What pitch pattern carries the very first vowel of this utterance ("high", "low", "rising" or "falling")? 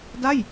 falling